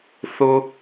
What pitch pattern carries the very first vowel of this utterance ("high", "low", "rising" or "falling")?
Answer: high